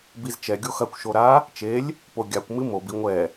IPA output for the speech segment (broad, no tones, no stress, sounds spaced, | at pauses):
b i z t͡ʃ ɛ ɡʲ o x ɐ kʷ ʃ o ɾ a | t͡ʃ e lʲ | p o ɡʲ a kʷ m ɨ m o b i ŋʷ ɛ